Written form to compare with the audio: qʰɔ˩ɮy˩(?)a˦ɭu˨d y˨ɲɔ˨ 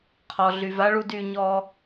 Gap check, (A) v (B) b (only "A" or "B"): A